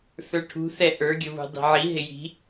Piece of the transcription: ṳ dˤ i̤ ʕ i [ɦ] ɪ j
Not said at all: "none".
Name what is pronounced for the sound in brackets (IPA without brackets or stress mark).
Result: ɦ